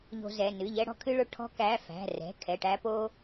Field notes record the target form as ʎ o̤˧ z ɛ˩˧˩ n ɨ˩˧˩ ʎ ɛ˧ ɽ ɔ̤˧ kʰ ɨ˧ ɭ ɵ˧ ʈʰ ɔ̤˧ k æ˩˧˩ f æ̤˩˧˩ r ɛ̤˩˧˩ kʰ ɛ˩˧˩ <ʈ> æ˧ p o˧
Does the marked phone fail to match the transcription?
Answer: no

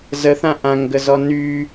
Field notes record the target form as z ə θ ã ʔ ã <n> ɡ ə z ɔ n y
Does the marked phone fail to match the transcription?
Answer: yes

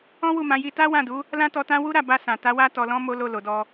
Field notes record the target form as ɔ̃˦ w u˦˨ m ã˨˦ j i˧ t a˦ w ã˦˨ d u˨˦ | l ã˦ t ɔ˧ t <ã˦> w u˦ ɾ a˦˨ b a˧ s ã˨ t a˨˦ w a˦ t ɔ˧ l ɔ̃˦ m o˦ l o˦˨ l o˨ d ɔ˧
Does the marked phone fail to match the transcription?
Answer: no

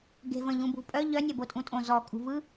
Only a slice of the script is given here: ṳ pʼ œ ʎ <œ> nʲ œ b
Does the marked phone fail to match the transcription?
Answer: no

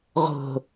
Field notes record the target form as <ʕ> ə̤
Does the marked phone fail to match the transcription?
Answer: yes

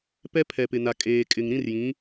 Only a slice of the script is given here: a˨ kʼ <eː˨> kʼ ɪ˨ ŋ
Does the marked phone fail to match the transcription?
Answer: no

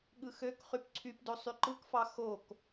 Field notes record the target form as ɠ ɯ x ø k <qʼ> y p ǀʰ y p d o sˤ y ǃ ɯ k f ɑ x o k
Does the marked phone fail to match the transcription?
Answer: yes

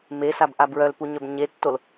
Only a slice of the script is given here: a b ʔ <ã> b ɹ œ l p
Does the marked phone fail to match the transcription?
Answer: yes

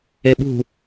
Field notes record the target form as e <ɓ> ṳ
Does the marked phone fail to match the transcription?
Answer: no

